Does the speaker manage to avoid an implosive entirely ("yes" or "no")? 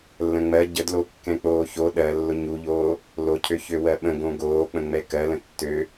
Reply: no